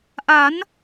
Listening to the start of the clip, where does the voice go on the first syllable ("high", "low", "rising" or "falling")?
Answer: rising